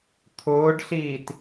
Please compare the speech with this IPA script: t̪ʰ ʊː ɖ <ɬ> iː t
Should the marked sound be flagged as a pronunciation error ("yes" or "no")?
no